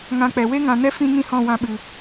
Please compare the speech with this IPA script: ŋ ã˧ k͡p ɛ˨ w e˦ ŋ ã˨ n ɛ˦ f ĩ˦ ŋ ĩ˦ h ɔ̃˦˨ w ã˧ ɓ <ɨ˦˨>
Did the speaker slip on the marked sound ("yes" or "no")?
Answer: yes